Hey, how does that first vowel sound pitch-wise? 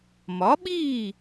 rising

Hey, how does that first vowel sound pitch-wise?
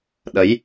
rising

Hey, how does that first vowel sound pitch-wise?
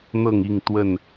falling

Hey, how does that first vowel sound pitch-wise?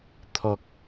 low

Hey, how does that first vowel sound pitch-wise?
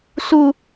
high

